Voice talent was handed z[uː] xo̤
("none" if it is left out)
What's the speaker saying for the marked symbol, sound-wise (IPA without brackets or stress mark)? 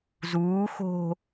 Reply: uː